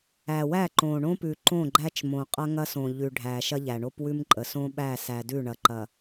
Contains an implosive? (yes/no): yes